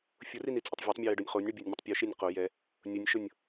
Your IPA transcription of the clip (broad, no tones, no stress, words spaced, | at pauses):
fʲʊrinit͡sʼʊtˤ vʲatˤmʲɔjɪɖonʲ χonʲɳubʲonʲmʲʊtˤ pʲuʃinʲ qo jɛ | nʲʊnʲʃʊnʲ